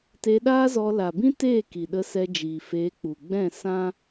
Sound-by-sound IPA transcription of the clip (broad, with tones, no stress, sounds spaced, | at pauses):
t e˧ ɗ aː˦ z ɔ˧ l a˨ b ĩ˦ t eː˦˨ k i˨ ɗ ə˧ s ɛ˧ d͡ʒ iː˨ f eː˨˦ k͡p u˨ ɡ͡b ɛ̃˦˨ s ã˦